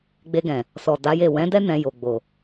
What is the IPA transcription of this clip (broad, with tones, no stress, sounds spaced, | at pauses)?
ɡ͡b e˧ ɡ ɛ̃˨ | s ɔ˨ d a˨˦ j e˦˨ w ɛ̃˨˦ d ɛ˦ n ɛ̃˧ j o˨ ɡ͡b o˨